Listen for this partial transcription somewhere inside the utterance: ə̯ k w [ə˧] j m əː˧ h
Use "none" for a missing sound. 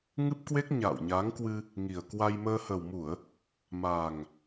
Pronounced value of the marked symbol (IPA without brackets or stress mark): a˧